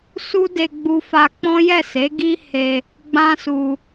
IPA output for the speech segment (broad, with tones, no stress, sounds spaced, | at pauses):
s u˦ d e˧ ɡ͡b u˧ f a˧ k͡p ɔ̃˦ j ɛ˦˨ s e˨˦ ɡ i˦ h e˧ | ɡ͡b ã˦ s u˧